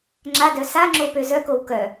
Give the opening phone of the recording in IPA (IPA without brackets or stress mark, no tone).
ŋ͡ǁ